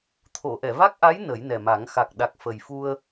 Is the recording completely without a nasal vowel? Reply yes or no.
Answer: yes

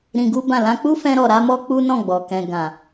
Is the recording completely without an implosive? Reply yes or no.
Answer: yes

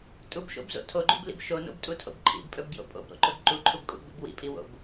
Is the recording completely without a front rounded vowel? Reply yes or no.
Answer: yes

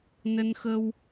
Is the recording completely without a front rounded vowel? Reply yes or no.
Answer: yes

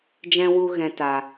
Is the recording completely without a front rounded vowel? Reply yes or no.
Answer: yes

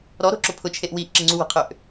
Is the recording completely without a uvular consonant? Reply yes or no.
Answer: no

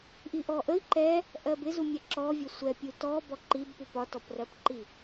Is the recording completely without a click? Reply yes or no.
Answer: no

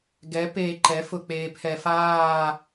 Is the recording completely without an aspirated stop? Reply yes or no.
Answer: no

